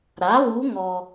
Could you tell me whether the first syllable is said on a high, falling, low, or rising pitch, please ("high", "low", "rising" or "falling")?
rising